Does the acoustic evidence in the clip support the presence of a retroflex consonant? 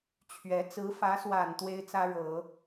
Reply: yes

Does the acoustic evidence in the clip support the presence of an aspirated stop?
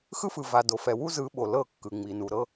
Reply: no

